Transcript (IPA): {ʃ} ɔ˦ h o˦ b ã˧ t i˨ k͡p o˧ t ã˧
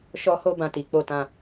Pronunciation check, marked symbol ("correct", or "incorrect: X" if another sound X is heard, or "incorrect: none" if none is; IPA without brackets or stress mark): correct